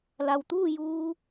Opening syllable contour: low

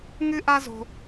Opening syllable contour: high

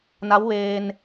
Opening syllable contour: rising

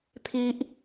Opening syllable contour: high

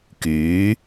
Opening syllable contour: rising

